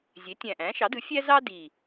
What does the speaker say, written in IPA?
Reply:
zʲ e˩˥ tʲ æ̃˨˩ ʔ æ̃˩˥ ʃ ɑ˩˥ d ɯ˩˥ fʲ æ˥ z ɑ˥ d i˨˩

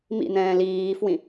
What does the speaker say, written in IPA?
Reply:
m ḭ n̪ ɛ̃ː l iː f w ĩ

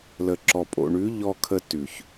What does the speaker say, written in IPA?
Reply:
l ə˨ ǁ ɔ˨ pʼ o̰˨ ɳ ʉ˨˦ ʎ ɔ˧ kʰ ə˧ t ʉ˨ ç

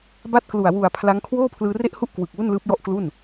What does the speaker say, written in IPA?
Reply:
b a˥˩ t̚ k l u˨˩ a̯ w u˨˩ a̯ pʰ l a˦˥ ŋ kʰ w oː˥˩ pʰ l ɯː˧ r e˥˩ ʔ h u˥˩ ʔ k w ɯ˨˩ k̚ w u˥˩ n l ɯː˦˥ p̚ j ɔ˥˩ ʔ k l u˥˩ n

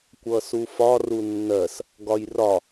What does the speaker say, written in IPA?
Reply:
kʷ ʌ s u f ɒ r u nː ɜ s | ɡ ɒ j r ɒ

